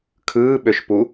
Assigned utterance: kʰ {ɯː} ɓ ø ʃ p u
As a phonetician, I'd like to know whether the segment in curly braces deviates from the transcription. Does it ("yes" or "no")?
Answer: no